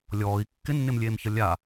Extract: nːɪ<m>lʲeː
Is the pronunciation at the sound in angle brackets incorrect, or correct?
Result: correct